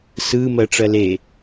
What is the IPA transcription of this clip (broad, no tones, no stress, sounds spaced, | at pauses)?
s ɯ m ɜ ʈ͡ʂ ɜ l e